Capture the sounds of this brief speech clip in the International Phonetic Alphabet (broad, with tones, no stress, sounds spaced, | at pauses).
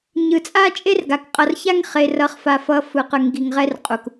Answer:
ɲ ɯ˨ t͡sʼ a˦ t͡ʃʼ e˦ r ɡ a˨ k qʼ ʌ˨ r ç a˦ ŋ χ e˨ r ʌ˨ χ f a˨ f ʌ˨ f ɯ˨ q ɯ˨ ŋ ɡ i˨ ŋ ʁ ɛ˦ r qʼ u˨ k